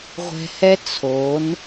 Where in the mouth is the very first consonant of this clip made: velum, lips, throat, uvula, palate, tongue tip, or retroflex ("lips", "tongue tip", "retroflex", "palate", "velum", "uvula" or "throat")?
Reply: uvula